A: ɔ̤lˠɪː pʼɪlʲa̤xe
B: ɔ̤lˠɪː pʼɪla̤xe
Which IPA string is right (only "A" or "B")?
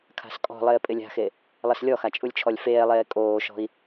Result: A